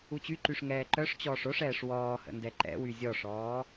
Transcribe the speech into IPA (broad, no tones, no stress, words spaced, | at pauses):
ut͡ɕyǃyʂ ŋɛːǃœʂt͡ɕɔːʂ oʂɛːʂ wɔːhə̰ ndɛǃɛ̰wy zʲɔʂɔː